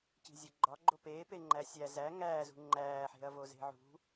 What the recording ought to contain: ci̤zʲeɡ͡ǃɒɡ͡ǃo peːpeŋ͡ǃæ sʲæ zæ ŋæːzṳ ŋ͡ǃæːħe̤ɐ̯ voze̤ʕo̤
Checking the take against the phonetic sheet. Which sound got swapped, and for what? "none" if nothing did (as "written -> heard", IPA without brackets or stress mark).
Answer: o̤ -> ṳ